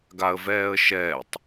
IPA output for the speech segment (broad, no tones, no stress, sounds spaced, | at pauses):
ɡ a ə̯ v ɛː ə̯ ʃ ɛː tˤ